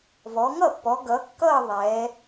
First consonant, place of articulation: labial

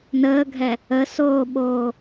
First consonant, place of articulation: alveolar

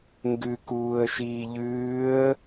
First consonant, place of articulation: velar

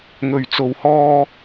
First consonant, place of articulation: velar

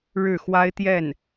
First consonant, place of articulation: retroflex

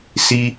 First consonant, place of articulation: alveolar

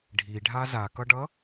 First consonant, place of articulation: retroflex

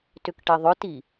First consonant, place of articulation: alveolar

